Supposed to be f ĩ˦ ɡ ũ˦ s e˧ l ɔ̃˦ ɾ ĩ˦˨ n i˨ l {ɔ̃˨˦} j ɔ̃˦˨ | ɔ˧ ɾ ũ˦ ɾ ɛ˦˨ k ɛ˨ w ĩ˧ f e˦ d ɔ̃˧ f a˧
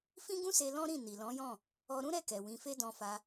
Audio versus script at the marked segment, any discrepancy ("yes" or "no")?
no